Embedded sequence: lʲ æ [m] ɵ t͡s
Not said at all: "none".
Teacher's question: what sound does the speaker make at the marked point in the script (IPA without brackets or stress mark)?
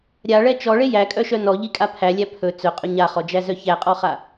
pʰ